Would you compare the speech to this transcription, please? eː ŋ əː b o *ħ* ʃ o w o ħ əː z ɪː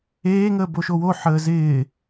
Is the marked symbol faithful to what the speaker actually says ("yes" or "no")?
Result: no